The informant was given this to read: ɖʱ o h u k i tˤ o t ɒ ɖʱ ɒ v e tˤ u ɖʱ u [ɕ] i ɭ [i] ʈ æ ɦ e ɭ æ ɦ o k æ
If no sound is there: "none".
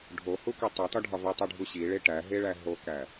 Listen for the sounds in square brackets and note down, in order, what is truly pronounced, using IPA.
ɕ, e

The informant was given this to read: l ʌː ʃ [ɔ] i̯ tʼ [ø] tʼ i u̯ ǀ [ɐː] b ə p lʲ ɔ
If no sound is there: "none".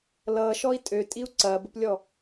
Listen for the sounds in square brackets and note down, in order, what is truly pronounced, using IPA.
ɔ, ø, ɐː

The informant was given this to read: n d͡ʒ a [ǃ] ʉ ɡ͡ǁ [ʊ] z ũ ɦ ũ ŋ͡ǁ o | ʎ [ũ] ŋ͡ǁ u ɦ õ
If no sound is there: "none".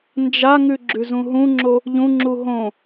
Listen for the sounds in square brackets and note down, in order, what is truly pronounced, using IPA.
ŋ, ʉ, ũ

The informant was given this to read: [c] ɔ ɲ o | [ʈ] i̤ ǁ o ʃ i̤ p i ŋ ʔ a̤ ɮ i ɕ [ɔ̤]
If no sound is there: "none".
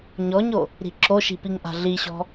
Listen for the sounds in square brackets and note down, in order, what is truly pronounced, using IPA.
ɲ, ɾ, ɔ̤

